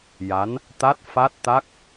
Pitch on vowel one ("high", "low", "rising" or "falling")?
rising